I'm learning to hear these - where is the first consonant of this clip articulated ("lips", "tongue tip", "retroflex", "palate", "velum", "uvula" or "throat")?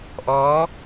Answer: throat